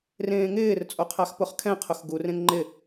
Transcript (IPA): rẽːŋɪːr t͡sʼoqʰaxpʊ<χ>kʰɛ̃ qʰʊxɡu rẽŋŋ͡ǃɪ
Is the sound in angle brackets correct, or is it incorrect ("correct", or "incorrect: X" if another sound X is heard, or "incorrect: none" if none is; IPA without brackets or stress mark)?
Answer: correct